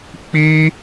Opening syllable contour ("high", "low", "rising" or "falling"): high